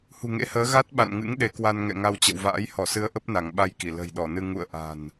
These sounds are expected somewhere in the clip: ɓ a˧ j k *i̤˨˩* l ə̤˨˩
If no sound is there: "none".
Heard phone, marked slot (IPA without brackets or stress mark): i˧˩